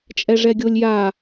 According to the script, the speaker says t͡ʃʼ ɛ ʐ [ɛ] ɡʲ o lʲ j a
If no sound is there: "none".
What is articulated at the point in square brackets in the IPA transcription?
ɛ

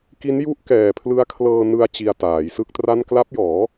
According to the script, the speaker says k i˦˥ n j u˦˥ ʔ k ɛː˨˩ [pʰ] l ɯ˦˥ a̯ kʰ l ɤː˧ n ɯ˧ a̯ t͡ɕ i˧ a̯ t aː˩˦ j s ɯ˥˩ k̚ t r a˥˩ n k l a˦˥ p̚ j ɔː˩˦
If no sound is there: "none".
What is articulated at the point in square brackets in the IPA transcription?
pʰ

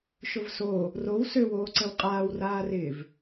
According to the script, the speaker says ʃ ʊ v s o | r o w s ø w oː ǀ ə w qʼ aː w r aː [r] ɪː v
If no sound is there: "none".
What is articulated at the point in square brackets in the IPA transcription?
r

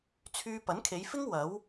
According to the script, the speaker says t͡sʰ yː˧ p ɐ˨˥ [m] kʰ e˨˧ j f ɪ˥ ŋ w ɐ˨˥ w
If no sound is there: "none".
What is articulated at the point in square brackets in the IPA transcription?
n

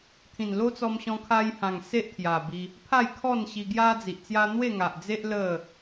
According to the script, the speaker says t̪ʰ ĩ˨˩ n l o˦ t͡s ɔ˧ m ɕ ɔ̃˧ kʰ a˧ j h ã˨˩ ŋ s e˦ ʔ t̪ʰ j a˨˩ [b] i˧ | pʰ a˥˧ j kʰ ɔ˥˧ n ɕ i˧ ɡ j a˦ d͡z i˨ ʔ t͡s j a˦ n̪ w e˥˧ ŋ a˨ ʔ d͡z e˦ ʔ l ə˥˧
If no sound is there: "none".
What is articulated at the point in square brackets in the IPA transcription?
b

